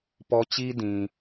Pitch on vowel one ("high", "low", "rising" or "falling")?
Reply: high